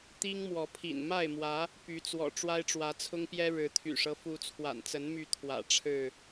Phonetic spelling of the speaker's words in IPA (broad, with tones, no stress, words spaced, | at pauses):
t̪i˦ŋmwɔ˨˦pʰḭ˨˩n ma˥˨ɪ̯mwä˨˦ | py˨˦t͡swɔ̰˨˩ ʈ͡ʂwa˦ɪ̯ʈ͡ʂwä˨˦t͡sʰʊ˦ŋpjɛ˦ ɻɻ̩˨˦t̪ʰy̰˨˩ʂɤ˦ fu˨˦t͡sʰwa̰˨˩nt͡sə˨˦nmy˨˦ t̪ʰwä̰˨˩ ʈ͡ʂʰɻ̩˥˨